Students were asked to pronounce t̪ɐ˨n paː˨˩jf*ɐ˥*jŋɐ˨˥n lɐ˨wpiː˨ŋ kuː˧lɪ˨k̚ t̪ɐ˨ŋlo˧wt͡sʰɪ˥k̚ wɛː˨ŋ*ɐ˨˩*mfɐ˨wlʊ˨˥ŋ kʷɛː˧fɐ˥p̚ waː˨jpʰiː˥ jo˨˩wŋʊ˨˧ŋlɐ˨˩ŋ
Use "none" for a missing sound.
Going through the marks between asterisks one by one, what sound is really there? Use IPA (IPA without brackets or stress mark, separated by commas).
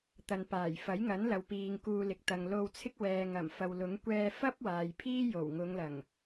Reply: ɐ˨˥, ɐ˨˩